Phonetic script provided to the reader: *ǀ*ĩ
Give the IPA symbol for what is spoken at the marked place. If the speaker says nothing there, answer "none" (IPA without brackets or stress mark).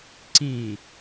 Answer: ǀ